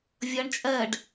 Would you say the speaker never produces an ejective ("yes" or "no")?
no